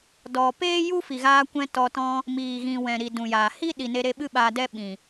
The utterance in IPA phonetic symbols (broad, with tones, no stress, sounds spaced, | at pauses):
d ɔ˨ p eː˦ j u˦ f i˨ ɣ aː˧ kʷ ɛ̃˧ t ɔ˧ t ɔ̃˧ | m iː˨ ɣ ĩ˨ w ɛ̃˨ ɾ i˨ d ũ˨ j aː˨ h i˦ ɗ i˨ n e˧ ɾ e˧ ɓ ɨ˦ ɓ aː˧ d ɛ˦ ɓ ĩ˨